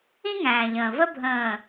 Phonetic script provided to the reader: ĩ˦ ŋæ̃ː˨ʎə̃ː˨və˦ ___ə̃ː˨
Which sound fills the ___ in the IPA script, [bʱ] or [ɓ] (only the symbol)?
bʱ